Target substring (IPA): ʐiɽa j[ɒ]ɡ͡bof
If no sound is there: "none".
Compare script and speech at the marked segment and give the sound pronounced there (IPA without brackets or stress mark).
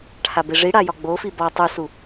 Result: ɒ